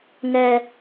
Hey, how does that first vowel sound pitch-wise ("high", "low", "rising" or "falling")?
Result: low